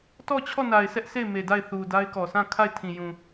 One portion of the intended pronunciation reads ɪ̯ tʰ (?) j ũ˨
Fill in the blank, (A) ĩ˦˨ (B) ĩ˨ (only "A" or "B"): B